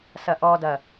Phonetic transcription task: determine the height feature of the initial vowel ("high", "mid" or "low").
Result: low